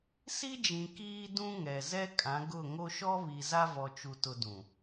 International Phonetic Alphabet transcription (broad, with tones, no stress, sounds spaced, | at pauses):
s i˦ d͡ʒ ĩ˨ k iː˦ d ũ˦ ŋ ɛ˨ z ɛ˦ kʼ ã˨˦ ɡ ʊ˦˨ ŋ o˦ ʃ ɔ˦ β i˨ z a˦ v ɔ˨ t͡ʃ u˨ t ʊ˨ d ũ˨